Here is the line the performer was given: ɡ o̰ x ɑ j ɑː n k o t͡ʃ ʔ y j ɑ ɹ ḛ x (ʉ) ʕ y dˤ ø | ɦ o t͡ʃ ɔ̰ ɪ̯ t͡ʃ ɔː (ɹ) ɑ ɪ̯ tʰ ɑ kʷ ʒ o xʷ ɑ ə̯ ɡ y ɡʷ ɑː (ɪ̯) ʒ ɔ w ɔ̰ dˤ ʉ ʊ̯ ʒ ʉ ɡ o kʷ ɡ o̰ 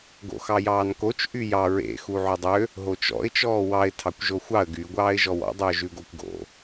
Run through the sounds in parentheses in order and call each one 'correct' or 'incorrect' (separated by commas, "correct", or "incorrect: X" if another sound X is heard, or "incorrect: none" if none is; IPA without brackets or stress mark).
incorrect: u, incorrect: w, correct